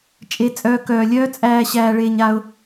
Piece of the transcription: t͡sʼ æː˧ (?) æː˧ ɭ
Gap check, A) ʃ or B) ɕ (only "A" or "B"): B